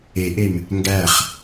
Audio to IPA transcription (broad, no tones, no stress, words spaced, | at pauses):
eʔem | ŋɡæχ